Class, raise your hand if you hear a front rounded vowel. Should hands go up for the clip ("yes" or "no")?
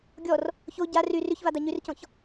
yes